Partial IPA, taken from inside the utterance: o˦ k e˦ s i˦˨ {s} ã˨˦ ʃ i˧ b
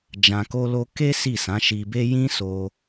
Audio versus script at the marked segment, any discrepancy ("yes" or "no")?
no